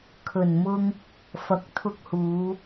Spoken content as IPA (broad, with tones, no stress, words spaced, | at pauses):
kʰɵ˨˩nmʊ˧ŋ | fɐ˨˥k̚t̪ʰʊ˧k̚huː˨˧